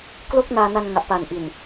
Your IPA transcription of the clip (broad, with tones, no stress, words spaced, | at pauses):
klo˦˥k̚naː˧na˧n ŋa˨˩ʔpa˨˩nʔi˨˩n